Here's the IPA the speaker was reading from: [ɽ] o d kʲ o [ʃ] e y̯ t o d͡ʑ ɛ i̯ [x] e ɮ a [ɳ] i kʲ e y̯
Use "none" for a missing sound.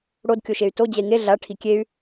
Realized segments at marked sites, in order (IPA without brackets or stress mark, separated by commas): ɽ, ʃ, ŋ, ʈʰ